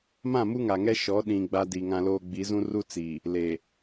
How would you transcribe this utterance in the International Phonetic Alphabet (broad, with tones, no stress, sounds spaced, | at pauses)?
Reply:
m ã˦˨ m u˦ ŋ a˨ ŋ ɛ˦ ʃ ɔ˨˦ ɗ ĩ˨ ɡ͡b a˦ d i˨ ŋ ã˦ l oː˦ ɡ͡b i˨˦ z ũ˦ r u˦ t͡s iː˨ | l e˨